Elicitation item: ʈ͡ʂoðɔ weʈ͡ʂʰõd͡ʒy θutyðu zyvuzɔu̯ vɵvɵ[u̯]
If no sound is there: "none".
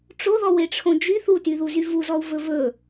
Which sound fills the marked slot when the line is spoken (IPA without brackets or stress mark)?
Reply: none